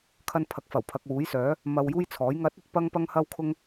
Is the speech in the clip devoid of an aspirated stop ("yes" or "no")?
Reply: no